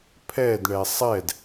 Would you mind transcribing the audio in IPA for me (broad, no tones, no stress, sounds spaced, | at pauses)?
pʰ ɛ d ɳ ɛ sˤ ɛ d